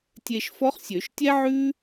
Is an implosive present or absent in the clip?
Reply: absent